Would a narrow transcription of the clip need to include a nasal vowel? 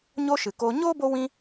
yes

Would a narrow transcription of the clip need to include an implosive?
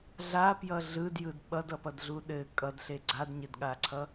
yes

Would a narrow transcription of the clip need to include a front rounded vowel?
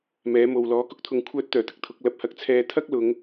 yes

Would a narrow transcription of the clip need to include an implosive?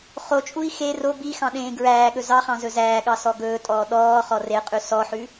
yes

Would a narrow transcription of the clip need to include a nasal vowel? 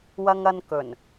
no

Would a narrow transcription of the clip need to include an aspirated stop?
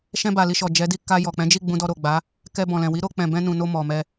no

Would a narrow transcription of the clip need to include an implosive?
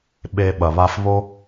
yes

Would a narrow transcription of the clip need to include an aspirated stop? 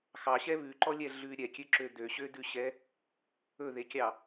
no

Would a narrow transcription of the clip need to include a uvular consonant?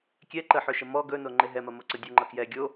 no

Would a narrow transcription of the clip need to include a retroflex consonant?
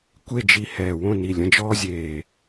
no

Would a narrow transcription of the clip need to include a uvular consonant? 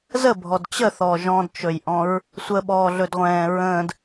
yes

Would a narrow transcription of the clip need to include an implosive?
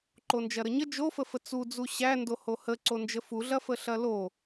no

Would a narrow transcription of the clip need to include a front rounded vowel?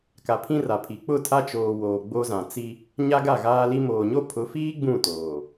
no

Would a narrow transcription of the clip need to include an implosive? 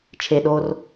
yes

